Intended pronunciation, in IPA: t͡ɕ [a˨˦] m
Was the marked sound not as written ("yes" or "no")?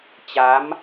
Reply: no